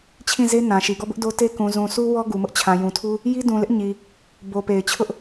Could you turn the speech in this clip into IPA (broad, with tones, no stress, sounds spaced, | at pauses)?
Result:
t͡ɕʰ ĩ˦˨ z e˦ n ã˨ ʃ i˨ ɡ ɔ˦˨ b ʊ˦ ʔ d o˦ t e˦ k ũ˨ z ũ˨ sʰ u˦ w ɔ˦ ɡ u˨ m ʊ˦ ʔ t͡ɕʰ ã˨ j ũ˨ tʰ u˦ | j i˦ d ũ˨ l ɪ˦ ʔ ɲ i˨ | b o˨ p e˨ ɪ̯ t͡ɕʰ ʊ˦ ʔ